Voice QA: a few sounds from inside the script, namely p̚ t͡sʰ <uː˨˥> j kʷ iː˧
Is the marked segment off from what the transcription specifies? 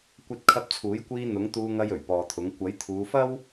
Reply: no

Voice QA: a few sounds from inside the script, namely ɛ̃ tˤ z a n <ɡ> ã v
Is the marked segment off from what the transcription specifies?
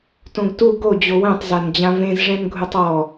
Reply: yes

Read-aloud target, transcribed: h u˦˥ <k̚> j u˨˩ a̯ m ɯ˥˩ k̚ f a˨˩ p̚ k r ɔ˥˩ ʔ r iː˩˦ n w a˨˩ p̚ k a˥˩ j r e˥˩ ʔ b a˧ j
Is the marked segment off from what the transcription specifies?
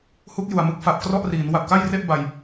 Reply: no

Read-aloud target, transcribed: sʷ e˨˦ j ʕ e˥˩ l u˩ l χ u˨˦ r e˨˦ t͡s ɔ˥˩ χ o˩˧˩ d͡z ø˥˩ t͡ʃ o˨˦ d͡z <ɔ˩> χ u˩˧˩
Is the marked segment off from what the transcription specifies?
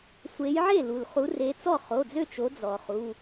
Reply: no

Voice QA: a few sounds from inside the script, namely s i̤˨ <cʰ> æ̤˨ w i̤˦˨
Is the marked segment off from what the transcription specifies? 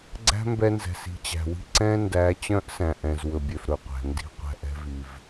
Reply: yes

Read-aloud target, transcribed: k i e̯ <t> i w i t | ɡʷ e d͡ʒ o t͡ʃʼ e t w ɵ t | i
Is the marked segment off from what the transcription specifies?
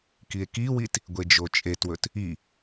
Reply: yes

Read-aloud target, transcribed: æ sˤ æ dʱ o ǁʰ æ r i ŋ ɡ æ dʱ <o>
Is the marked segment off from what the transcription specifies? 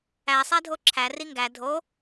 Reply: no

